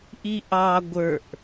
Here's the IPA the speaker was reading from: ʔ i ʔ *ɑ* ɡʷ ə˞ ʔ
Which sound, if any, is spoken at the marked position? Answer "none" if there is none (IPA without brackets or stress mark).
ɑ